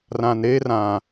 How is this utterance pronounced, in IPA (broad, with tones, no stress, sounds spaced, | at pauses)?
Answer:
r ã˨ n ɾ eː˦ r ã˨